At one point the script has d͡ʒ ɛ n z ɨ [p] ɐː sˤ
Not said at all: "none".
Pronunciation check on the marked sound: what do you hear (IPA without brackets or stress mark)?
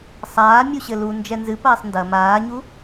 p